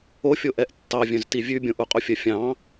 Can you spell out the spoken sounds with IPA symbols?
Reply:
ofʲo ʔɛʔtːɑ vʲœ̃ztivʲʉ bʲõʔuqʼufʲœ fʲɑ̃

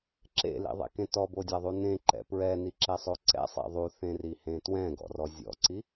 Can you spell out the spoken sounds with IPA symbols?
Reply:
ǁḛlḭðˤḛkẽ tɔbodʲaðˤu nẽǃɛ̰ pɹɛniǁɛsˤo ǀɛ̰sˤɛ̰ ðˤuθẽrihẽ twɛ̃ɡɔ̰rɔ zʲɔ̰ǀi

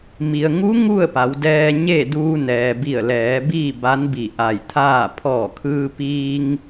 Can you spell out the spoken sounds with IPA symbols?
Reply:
mi˩ə̯ ŋu˧˥ ŋu˥˨ə̯pa˩˧wdɛː˧ ɲe˥˨ duː˧nɛː˩bi˧˩ə̯lɛː˩˧ biː˥˨ba˧˥nbi˧˩ ʔa˧˩jt̪ʰaː˥˨ pʰɔː˧˩kʰɯː˧piː˧ŋ

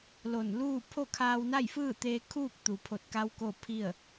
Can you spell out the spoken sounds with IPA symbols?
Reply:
lo˧˩nluː˥˨ pʰo˥˨kʰaː˧w na˥˨jfɯː˥˨t̪eː˧kʰuː˥˨k̚ t̪u˩pʰo˧˩t̚ka˧w ko˥˨pʰi˥˨ə̯

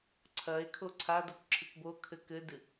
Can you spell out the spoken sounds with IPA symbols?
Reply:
ǀʰɐe̯ kʰoǀʰadok ǁʰɨkbokʰɘ kɘdɨ

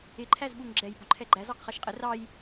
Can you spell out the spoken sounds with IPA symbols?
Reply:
ɪǃʰæzɓuŋ ɡ͡ǁɛj bʊǃʰɛɡ͡ǃæz ɑqχɜʃqʼɪ rɑj

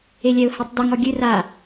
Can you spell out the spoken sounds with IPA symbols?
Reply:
elʲɛʊ̯hɛtˤdɨŋ ɔɡʲɨ ra

